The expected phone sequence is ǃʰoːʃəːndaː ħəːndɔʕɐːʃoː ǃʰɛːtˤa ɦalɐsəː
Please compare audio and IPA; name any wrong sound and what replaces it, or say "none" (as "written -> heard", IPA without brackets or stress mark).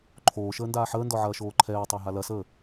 none